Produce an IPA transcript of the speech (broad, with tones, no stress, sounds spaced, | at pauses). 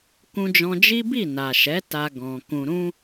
k ũ˧ d͡ʒ ɔ̃˧ d͡ʒ i˦ b i˦˨ n a˨ ʃ ɛ˨˦ t a˧ ɡ ɔ̃˨ k ũ˨ ɾ ũ˧